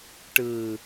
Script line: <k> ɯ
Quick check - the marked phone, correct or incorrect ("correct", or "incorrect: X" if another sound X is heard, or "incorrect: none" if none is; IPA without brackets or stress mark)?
incorrect: ʈ